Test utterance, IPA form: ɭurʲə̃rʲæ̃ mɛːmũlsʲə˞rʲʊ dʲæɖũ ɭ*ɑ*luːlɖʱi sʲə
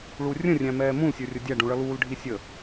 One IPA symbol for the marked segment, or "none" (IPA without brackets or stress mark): ʌ